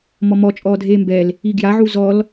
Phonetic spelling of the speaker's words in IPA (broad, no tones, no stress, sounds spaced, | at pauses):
m ɔ m ɔ t͡ʃʼ ɔː dʱ eː m b ɛ l | i ɡ j a ʕ u z ɔ l